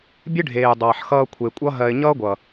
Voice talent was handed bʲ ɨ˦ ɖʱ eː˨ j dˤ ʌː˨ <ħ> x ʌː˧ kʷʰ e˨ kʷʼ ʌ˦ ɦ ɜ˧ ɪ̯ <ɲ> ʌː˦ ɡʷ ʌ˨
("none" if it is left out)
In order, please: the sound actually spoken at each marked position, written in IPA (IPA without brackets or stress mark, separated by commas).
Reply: ħ, ɲ